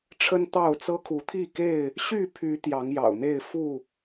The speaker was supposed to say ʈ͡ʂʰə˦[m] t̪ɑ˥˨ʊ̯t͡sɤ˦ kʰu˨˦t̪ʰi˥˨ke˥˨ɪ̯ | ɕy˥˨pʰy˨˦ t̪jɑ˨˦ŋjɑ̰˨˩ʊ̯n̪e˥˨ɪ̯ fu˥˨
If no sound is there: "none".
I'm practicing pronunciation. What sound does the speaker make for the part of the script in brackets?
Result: n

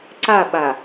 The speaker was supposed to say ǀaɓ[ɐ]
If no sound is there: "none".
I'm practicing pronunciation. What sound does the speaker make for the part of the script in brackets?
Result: a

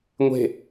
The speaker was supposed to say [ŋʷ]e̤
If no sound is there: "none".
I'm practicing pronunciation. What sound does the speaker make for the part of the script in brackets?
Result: ŋʷ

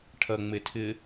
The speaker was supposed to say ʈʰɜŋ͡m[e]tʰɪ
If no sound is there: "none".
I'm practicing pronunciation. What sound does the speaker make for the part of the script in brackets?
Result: e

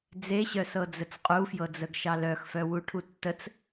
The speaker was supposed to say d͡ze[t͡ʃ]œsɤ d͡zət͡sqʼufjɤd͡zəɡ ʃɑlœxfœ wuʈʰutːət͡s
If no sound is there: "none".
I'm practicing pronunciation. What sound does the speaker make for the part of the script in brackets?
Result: ɕ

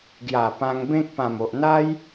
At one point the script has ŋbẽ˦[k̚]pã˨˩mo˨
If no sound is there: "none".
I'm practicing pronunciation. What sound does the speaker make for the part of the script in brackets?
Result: k̚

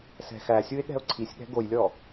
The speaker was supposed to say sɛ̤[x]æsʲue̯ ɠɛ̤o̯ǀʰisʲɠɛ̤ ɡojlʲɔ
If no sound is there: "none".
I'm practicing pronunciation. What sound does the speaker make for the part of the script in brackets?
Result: x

